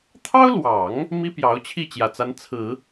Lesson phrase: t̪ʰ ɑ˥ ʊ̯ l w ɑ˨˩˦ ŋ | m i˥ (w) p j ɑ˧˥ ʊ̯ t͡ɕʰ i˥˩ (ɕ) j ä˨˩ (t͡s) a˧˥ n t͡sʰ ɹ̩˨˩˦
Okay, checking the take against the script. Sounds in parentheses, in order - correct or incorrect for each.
incorrect: none, incorrect: t͡ɕ, correct

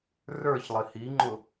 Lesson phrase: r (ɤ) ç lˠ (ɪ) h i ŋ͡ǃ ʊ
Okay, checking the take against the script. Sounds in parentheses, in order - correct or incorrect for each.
incorrect: ə˞, correct

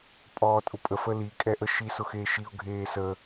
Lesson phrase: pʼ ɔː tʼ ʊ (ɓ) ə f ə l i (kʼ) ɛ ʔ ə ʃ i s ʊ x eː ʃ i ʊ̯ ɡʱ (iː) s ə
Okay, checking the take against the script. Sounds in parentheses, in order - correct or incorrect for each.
incorrect: pʼ, correct, incorrect: eː

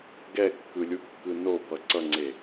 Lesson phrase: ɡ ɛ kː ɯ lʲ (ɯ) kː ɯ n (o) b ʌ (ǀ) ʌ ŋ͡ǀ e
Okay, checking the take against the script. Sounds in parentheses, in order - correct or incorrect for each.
incorrect: u, correct, correct

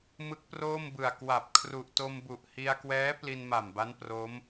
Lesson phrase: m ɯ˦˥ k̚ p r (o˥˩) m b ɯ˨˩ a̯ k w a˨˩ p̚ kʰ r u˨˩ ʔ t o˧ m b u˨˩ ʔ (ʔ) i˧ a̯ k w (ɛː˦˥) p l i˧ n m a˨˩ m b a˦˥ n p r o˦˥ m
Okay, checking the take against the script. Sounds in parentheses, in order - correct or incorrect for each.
incorrect: oː˥˩, incorrect: h, correct

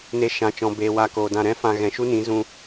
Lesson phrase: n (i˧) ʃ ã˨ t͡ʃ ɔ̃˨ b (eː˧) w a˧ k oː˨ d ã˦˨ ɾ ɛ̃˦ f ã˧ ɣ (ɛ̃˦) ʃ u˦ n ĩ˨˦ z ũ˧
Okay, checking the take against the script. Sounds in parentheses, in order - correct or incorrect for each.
incorrect: e˧, incorrect: eː˨, incorrect: ɛ̃˨

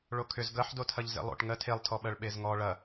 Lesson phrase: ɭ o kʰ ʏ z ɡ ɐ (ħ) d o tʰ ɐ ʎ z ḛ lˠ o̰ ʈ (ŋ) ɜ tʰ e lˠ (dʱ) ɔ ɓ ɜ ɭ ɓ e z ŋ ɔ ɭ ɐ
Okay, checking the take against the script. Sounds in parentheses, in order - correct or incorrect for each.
correct, correct, incorrect: tʰ

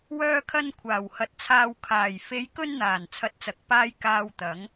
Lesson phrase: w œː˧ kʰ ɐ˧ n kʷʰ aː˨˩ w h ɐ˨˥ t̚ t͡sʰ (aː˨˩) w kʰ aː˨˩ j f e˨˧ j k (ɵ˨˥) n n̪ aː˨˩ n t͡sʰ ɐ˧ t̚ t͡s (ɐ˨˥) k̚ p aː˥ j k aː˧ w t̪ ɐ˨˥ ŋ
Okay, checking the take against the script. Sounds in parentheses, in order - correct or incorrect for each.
incorrect: aː˧, incorrect: ɵ˧, correct

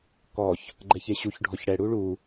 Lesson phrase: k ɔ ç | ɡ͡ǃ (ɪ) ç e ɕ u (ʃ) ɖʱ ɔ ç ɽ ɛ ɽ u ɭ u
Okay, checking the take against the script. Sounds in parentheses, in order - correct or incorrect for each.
incorrect: ɛ, incorrect: ç

